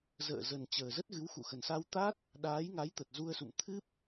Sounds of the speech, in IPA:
z ə̰ː˧˨ z ə˨˩ n t͡ɕ əː˨˩ z ə˦˥ t̚ ɣ ɨ˨˦ w x ṵ˧˨ x ə˨˩ n s a˧ w t̪ a˦˥ t̚ | ɗ aː˨˦ j ŋ a˨˦ j t̪ ə˨˩ t̚ z u˧ ə̯ s ṵ˧˨ m t̪ʰ ɨ˦˥ p̚

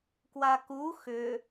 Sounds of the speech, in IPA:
k w a k u x ʏ

